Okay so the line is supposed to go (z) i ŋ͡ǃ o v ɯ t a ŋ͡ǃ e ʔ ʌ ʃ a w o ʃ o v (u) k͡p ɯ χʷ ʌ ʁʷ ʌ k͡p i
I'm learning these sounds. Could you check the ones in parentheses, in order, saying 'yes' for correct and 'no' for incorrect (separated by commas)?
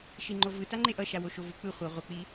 no, yes